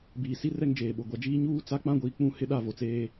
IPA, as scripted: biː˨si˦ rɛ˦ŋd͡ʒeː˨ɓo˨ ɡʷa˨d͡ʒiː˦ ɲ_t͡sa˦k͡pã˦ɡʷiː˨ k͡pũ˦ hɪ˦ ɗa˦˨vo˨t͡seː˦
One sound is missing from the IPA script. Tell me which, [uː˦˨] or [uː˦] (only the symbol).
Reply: uː˦